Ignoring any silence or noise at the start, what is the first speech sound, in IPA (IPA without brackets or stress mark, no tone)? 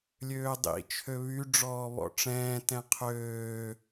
lʲ